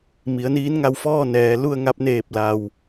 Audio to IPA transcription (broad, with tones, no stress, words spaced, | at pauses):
mi˩˧ə̯niː˧˥nŋa˧wfɔː˥˨ nɛː˩˧ lu˥˨ə̯ ŋa˧p̚neː˧˩p̚ la˩w